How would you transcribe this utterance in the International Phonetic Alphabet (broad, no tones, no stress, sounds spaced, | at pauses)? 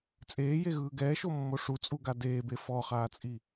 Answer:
t͡sʼ eː j e ɣ ɯː ɡ ɛː ʃ o mː o ʂ u t͡sʼ u ɡ a d eː b e f ɔ χ aː t͡sʼ i